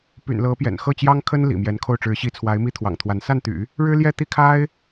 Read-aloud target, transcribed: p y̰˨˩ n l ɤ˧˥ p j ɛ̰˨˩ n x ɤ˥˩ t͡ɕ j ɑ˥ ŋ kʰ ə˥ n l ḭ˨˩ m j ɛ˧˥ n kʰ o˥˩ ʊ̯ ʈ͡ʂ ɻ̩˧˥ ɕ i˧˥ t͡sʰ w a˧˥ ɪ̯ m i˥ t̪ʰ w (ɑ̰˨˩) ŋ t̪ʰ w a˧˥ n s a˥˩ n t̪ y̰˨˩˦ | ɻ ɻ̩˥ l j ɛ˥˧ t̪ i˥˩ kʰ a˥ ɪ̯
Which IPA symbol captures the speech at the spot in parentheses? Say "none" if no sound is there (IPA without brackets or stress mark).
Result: ɑ̰˨˩